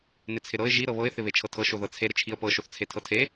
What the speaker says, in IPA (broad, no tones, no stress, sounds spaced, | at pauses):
n ɪ t͡sʰ ɪ ɾ ɤ ɪ̯ ʒ i ɾ ɤ β ɤ ɪ̯ θ ɪ β e t͡ʃʰ ɤ tʰ ɤ ʃ o ð ɤ t͡sʰ e ɾ ɪ t͡ʃʰ i ə̯ p ɤ ʃ o θ t͡sʰ e tʰ ɤ tʰ e